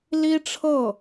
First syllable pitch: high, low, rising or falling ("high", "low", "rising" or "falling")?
high